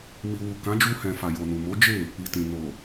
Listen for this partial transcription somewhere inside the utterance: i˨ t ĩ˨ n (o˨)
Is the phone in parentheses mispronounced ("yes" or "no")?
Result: no